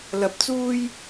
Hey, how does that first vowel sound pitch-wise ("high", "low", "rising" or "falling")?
low